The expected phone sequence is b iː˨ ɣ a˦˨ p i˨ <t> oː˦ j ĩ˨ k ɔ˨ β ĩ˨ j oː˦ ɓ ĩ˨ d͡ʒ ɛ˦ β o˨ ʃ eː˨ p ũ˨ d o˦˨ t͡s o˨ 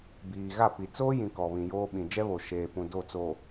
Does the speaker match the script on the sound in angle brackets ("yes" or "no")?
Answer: no